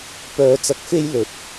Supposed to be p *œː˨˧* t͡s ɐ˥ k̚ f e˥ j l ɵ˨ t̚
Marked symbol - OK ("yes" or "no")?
no